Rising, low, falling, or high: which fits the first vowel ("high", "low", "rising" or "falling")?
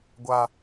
high